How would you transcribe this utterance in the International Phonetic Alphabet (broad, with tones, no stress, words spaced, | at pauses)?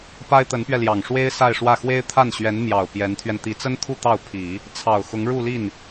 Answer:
pa˥ɪ̯t̪ə˧˥npɥɛ˧ljɑ˨˩ŋ ʂwe˥ɪ̯ sa˥˧ɪ̯ʂwä˥˩ xwe˥ɪ̯t̪ʰa˥˩nɕɥɛ˧˥n mjɑ˨˩ʊ̯ pjɛ˧˥nt̪ʰɥɛ˧n t̪i˧˥t͡sə˥nt̪ʰu˥˧ t̪ɑ˥˩ʊ̯pʰi˨˩˦ | t͡sʰɑ˨˩ʊ̯xʊ˧˥ŋ ɻu˥˧li˥˩n